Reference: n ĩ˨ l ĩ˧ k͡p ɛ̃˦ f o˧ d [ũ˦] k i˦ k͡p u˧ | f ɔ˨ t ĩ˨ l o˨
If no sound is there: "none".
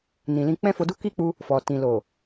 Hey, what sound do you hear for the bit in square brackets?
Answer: u˦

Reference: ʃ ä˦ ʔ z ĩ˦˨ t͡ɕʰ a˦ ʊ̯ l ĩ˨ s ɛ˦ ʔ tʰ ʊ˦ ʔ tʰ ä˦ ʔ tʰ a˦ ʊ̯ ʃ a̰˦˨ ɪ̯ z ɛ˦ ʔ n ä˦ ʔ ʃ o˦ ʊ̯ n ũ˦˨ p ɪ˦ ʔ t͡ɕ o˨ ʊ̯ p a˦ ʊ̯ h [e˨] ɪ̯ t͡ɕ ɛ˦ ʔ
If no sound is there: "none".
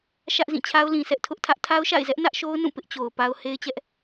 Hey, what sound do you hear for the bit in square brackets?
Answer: e˦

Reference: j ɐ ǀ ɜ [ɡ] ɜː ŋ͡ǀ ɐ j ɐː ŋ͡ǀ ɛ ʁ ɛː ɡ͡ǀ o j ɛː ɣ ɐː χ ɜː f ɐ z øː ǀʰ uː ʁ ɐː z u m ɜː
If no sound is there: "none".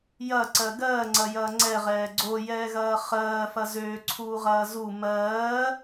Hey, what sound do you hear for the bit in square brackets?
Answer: ɡ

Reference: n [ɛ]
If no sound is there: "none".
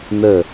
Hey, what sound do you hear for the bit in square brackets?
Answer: ə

